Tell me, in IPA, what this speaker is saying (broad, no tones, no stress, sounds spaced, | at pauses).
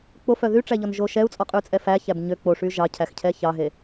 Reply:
k͡p o f œ ð y ʈ͡ʂ æ ʎ ɔ n ʒ o ʃ ɛ u̯ t͡sʼ ɔ qʼ ʉ t͡sʼ ɛ f æ ç æ b ɲ ø k͡p o ʂ y ʒ ɑ cʰ æ x cʰ ɛ ç ɑ ɦ e